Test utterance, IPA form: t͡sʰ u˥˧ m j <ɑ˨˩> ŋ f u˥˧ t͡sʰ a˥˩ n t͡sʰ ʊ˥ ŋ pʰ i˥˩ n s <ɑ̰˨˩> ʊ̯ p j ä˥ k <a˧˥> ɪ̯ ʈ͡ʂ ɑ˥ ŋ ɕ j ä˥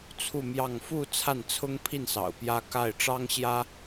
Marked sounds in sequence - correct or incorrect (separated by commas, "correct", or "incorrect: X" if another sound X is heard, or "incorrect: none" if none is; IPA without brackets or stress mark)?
incorrect: ɑ˥˧, correct, incorrect: a˥˩